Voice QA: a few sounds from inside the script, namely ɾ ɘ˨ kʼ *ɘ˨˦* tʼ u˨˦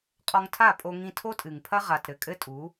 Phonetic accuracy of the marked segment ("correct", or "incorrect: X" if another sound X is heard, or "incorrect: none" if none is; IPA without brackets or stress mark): incorrect: ɘ˦